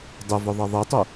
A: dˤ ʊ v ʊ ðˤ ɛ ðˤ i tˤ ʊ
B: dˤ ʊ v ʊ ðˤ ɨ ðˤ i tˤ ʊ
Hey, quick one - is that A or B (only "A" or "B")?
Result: A